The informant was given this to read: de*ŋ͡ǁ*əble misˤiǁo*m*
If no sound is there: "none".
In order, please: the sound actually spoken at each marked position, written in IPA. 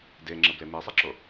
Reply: ŋ͡ǁ, none

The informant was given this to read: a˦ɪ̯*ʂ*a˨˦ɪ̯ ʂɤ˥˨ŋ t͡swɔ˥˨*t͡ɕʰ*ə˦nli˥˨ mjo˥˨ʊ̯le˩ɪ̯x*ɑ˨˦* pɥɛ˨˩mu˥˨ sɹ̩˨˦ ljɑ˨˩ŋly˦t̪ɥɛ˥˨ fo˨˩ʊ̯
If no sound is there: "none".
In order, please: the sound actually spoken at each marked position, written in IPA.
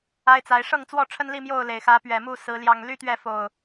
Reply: t͡s, ʈ͡ʂʰ, ä˨˦

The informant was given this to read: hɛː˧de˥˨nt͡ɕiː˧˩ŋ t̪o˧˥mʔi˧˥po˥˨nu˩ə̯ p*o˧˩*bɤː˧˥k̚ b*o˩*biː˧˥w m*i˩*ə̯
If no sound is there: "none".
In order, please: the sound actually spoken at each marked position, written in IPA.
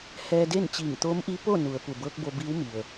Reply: u˧˩, o˧, i˩

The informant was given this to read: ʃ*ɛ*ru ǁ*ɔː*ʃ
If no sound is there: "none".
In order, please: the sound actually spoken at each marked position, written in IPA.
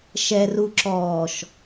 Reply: ɛ, ɔː

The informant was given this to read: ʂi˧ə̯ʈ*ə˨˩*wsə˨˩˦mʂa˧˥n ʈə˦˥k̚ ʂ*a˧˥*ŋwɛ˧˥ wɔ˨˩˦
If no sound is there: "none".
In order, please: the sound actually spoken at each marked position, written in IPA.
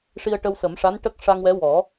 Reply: ə˧, a˧

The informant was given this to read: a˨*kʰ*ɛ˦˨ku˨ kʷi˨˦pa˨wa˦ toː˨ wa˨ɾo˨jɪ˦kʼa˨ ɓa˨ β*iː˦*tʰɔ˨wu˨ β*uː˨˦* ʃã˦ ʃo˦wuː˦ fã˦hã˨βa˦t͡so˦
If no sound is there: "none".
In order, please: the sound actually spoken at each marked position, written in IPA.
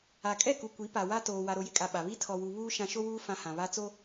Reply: kʼ, i˦, uː˦

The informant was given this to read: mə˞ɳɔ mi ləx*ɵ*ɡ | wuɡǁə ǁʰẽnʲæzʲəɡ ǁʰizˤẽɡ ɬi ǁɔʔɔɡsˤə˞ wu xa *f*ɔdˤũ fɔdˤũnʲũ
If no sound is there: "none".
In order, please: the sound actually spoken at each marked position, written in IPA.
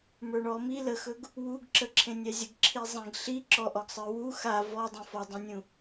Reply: ɵ, v

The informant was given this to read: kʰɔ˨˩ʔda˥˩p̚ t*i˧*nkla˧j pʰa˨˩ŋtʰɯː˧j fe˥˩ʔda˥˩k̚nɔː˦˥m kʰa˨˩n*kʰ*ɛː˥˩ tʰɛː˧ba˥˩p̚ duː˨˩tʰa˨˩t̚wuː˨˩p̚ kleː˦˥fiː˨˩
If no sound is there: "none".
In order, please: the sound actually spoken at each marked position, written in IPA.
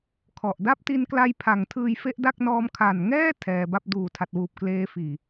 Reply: i˧, ŋ

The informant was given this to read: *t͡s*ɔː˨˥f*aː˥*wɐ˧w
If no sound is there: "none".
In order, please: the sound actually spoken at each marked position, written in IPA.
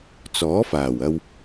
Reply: t͡s, aː˨˩

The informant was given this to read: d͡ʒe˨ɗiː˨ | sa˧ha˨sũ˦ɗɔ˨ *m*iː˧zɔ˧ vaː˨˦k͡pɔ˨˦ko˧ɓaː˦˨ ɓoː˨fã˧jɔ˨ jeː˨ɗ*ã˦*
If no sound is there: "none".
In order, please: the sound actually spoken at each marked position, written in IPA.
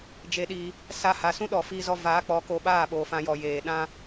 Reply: f, ã˦

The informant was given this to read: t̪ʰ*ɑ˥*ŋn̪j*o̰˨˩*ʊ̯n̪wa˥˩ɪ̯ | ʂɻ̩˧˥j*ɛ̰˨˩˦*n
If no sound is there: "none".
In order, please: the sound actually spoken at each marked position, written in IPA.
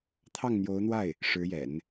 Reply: ɑ˥˩, o˧˥, ɛ̰˨˩˦

